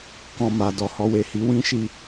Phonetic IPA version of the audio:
k ɔ̃˧ m a˨ d ɔ˨ h ɔ˧ w e˨ h i˨˦ w ĩ˦ ʃ i˦˨

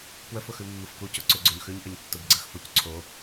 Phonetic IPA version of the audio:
p w ə f ʊ x ʉ mː ə f k u c ʊ ǀ ʉ ɡ͡ǀ o ɲ x ʉ ɲ ʔ ə ɲ tː ʊ b ɡ͡ǀ ə x f ʊ c ǀʰ o

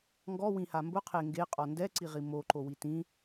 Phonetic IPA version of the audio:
ŋ ɡ ɔ w ĩ h a m b ʊ qʰ e ŋ ɡ e qʼ ɔ n d ɛ ǀ i ʁ i m o ǃ o w i t ĩ

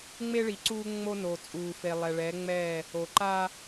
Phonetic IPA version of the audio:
ŋ͡m e˦ ɭ i˨ ǀ uː˦ ŋ͡m o˦ n o˨ t͡sʼ uː˨ f e˨ lˠ ɛ˨ ɭ ɛː˨˦ ŋ͡m ɛː˦˨ | o˨ ǃ a˦

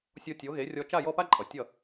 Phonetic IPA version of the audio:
sʲ o˧ tʲ o˩˥ ɣ e˩˥ rʲ ɔ˧ t͡ʃ a˥˩ j ɔ˥˩ p a˥ ǃʼ ʌ˩ tʲ ʌ˥˩

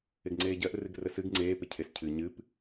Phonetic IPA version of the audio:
ɪ ɡ ŋ͡ǀ eː ɟ ɜ ʔ r ɨ ɡ r ə s ɨ ɡ ŋ͡ǀ eː p ɪ cʰ e s cʰ ɨ ɲ ɨ p

